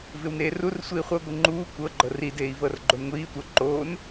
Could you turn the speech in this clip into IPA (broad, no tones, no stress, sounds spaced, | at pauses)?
v ɪ w n eː r u r sʷ iː χʷ ɤ ɡʷ ɪ ŋ͡ǃ uː kʷ ɤ ɡ͡ǃ ɤ r i d eː i̯ v ɤ r ɡ͡ǃ o n ŋʷ iː tʷ ɤ ǃ oː n